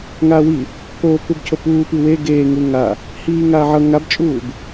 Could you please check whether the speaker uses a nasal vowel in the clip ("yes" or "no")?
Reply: no